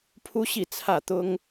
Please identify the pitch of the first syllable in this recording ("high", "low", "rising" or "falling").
high